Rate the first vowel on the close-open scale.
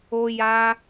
mid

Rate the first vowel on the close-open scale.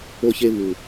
mid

